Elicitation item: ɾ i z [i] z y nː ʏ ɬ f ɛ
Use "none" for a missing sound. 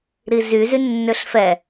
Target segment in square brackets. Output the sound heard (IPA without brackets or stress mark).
y